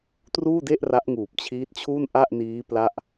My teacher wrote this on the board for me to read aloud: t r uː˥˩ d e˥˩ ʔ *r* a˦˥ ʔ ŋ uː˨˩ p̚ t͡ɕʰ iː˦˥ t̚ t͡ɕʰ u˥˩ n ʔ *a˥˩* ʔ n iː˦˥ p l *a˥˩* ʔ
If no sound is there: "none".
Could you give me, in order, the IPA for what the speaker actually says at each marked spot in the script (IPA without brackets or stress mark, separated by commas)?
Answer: r, a˥˩, a˥˩